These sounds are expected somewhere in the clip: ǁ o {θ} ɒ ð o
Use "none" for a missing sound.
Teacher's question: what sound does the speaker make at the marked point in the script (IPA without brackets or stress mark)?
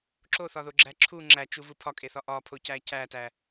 θ